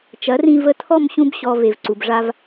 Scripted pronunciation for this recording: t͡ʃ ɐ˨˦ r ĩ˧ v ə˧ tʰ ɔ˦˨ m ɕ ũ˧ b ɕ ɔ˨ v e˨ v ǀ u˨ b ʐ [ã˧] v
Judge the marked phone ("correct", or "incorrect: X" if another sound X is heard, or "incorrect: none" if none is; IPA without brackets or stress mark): incorrect: a˧